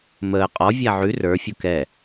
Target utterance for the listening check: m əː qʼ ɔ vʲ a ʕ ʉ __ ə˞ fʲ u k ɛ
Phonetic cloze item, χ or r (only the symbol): r